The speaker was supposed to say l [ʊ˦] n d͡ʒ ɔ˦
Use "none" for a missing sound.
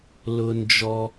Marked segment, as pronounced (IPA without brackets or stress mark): ʊ˦